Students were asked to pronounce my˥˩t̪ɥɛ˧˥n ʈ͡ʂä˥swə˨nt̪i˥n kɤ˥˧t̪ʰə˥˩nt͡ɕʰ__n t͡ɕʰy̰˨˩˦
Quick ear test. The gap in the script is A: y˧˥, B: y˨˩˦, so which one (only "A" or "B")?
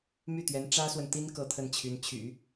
A